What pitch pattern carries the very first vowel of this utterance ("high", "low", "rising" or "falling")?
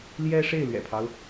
high